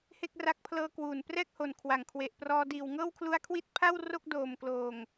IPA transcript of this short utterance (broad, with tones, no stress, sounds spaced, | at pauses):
h e˥˩ k̚ r a˦˥ k̚ pʰ l ɤː˧ k w uː˨˩ n p r ɛː˥˩ k̚ h o˨˩ n kʰ w a˨˩ ŋ kʰ w e˨˩ ʔ p r ɔː˧ d iː˨˩ w ŋ ɤː˥˩ w kʰ l u˦˥ a̯ kʰ w i˥˩ t̚ pʰ a˥˩ w r o˥˩ k̚ d oː˨˩ m k l oː˨˩ ŋ